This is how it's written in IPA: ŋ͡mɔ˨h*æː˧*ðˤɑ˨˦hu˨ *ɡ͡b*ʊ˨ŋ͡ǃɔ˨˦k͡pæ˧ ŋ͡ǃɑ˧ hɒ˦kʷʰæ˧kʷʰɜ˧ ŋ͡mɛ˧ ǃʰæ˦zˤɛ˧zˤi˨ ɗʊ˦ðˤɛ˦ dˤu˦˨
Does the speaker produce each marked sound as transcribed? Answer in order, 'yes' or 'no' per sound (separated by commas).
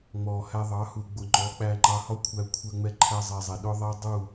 no, yes